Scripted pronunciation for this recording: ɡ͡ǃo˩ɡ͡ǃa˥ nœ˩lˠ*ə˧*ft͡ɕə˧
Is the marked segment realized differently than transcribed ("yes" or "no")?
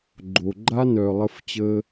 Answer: no